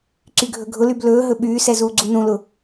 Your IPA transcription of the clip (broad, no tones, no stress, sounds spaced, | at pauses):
ǀ y ɡʱ ɵ ɡʱ ʊ l y b l ɵː ɦ ɵ ɓ yː s ɛ z uː ɡ͡ǀ u n ũ l ʊ